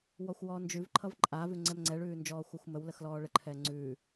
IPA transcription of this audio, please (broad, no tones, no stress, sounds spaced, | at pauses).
w ɔ xʷ w ɔː n d͡ʒ ʉ v ǃʰ ʌ v ǃʼ a v ʉ ŋ͡ǀ ɛ m ŋ͡ǀ ɛ ɭ ʉː n d͡ʒ ɔː xʷ ʌ xʷ m ə w l ə x l ɔː ɭ ə ǃʰ ɛː ŋ͡ǀ ʉː